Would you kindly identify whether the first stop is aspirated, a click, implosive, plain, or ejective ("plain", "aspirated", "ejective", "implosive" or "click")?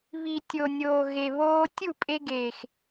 plain